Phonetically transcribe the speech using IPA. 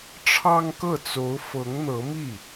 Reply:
ʈ͡ʂʰɑ˥ŋkɤ˥˩t͡so˧˥ʊ̯ fɤ˧˥ŋn̪ɤ˧˥mi˥˩

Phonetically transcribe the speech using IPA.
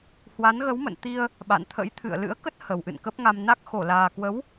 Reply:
hwa˨˦nɣə˨˦wmə̰˧˨n t̪i˧ə̯ | ɓa̰˧˨nt̪ʰə̰˧˥jt̪ʰɨ̰˧˨ə̯ lɨ̰˧˥ə̯kə˦˥t̚ hə˨˩wʔɨ̰˧˨nkə˦˥p̚ŋa˧m na˦˥k̚xo˧˩ laː˨˩ kwə˨˦w

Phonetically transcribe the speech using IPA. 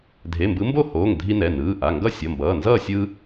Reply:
dʱe˩˧˩mbɯ˨˦mbo˥˨hoː˩˧˩ŋ dʱi˦nɛ˩˧˩ nɯː˩˧˩ʔa˩˧˩ ŋɡʌ˥˨sʲʌ˩˧˩mbʌː˩˧˩ nzʌː˥˨ sʲɯː˦

